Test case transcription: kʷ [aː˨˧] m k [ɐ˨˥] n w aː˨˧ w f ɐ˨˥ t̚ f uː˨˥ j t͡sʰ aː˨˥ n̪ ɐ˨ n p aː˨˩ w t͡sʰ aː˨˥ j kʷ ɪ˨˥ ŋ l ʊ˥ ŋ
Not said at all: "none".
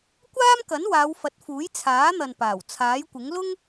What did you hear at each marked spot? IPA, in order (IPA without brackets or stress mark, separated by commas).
aː˥, ɐ˨˥